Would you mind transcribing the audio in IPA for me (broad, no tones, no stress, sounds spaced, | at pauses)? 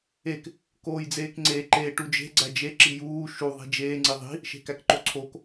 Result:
e k | k oː j d͡z eː k ŋ͡ǀ e ǃ e ʈ u d͡ʒ e̤ ɡ͡ǀ æ d͡ʒ e ǁ i j uː ʃ u ðˤ i̤ d͡ʒ eː ŋ͡ǀ i ðˤ i̤ | ʃ e̤ k æ k ǃ o ǀʰ o k